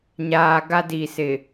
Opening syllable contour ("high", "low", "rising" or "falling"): low